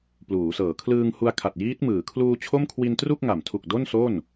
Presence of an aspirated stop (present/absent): present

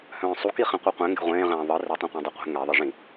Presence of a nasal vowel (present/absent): present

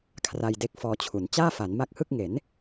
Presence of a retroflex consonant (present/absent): absent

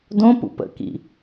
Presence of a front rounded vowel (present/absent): absent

